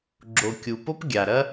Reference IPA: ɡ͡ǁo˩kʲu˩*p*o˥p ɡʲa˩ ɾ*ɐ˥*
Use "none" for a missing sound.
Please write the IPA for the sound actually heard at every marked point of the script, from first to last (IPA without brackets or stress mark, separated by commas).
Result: p, ɐ˥